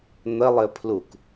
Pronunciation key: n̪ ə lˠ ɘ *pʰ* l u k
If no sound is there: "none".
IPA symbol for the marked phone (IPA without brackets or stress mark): pʰ